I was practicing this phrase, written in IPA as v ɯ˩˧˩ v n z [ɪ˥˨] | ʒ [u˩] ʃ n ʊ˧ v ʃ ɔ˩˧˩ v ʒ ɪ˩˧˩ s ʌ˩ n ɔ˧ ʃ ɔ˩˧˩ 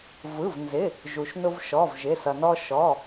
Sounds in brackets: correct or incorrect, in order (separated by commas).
incorrect, correct